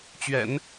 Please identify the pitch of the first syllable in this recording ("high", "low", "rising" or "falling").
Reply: low